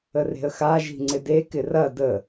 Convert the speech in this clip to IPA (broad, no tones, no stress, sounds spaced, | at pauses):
ə r e̤ ə̯ x a ʒ i̤ ŋ͡ǀ ɪ d e k ɪ r ɐ d ə